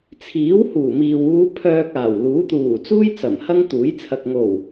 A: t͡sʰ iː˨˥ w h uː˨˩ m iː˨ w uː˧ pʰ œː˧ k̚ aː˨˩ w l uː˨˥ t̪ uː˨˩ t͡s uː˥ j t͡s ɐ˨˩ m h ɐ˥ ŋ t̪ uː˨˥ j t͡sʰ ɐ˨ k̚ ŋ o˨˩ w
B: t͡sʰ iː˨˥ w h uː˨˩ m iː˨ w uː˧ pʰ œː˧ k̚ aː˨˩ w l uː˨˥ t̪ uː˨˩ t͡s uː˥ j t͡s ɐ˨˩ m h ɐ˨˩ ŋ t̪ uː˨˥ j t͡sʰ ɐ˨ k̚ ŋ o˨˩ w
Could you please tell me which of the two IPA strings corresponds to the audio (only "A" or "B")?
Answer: A